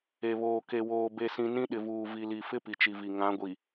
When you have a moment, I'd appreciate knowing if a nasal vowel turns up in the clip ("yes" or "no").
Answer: yes